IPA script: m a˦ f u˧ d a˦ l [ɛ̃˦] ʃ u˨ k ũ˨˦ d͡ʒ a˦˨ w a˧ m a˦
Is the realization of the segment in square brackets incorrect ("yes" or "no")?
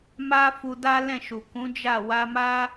yes